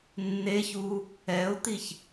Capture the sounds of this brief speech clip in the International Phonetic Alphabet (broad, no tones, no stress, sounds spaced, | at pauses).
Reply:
nː e ç u | ɛ ʊ̯ t̪ i ç